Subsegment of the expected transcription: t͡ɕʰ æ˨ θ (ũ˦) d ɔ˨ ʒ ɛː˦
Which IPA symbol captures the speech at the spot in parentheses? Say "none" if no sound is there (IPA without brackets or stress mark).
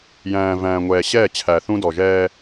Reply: ũ˦